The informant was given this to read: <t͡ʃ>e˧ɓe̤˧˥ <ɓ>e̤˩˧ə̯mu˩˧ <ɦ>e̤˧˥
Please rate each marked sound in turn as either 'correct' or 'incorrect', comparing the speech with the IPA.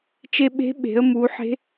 correct, correct, incorrect

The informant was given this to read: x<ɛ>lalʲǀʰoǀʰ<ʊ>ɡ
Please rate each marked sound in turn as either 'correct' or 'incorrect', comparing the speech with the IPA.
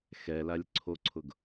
correct, correct

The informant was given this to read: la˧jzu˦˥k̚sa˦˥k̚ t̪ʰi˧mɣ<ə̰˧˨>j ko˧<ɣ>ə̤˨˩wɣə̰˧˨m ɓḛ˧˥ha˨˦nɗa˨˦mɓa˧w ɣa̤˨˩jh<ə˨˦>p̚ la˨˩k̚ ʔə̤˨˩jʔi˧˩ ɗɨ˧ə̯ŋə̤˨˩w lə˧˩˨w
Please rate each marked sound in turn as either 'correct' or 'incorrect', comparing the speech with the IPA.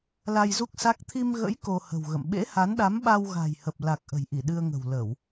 incorrect, incorrect, incorrect

